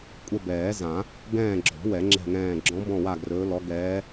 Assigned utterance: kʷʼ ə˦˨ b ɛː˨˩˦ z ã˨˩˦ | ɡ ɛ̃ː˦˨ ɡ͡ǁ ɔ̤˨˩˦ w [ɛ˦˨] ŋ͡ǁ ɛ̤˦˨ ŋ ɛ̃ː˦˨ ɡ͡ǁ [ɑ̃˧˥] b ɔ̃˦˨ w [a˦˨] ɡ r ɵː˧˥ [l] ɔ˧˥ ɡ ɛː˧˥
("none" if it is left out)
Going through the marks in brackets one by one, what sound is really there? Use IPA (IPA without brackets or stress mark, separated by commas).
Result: ɛ˨˩˦, ɔ̃˧˥, a˦˨, l